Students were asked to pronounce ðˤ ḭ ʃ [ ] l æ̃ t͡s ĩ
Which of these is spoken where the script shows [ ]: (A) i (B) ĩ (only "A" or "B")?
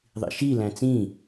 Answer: A